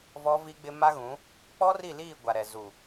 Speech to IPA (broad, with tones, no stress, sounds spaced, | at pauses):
v ɔ˦ v i˦ ɡ͡b ɪ˦ m a˦ ɣ ũ˨˦ | k͡p ɔ˦ r i˦˨ l iː˦˨ ɡʷ a˨ ɾ ɛ˨ z u˨